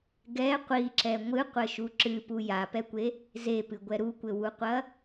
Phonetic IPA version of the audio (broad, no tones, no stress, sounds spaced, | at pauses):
ɡ ɛ qʷ i ǁ ɛ ŋʷ ɨ qʷ ɘ ʃ u ǁ ɨ p u j a p ɛ kʷ e | z e p ɨ ɡʷ ɛ ɾ u kʷ ɘ w u qʷ ɐ